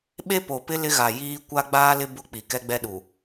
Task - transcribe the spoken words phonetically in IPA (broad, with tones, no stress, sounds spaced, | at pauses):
ɓ e˦ p o˨ p ɪ˦ l ɪ˦ ɣ a˨ j iː˦ kʷ a˦ ɡ͡b aː˦ l ɪ˦ b ʊ˦ k͡p i˨ k ɛ˦ ɡ͡b ɛ˦ ɗ u˨